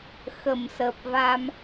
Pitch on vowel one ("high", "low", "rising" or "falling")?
low